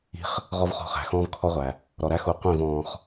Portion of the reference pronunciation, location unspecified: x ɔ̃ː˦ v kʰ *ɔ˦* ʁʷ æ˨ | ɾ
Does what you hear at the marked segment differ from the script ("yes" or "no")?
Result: no